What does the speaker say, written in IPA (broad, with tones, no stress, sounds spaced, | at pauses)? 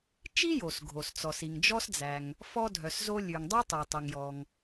t͡ʃ i˥ j o˩ s ɡʱ o˩ s t͡s ɔ˩ s i˩ ŋ d͡ʒ ɔ˥ s d͡z æ˩ ŋ | f ɔ˥ dʱ œ˩ s z o˥ lʲ ʉ˩ ŋ dˤ ʉ˥ tˤ i˩ tˤ y˩ ŋ j ɔ˩ ŋ